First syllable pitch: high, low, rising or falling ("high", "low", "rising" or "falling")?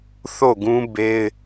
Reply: falling